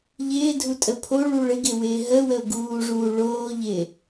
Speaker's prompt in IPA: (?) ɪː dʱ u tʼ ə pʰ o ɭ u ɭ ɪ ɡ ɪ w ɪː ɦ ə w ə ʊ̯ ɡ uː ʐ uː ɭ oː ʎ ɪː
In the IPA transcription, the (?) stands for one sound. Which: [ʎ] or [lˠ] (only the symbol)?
ʎ